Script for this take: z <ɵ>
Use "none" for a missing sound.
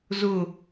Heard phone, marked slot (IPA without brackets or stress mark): ʊ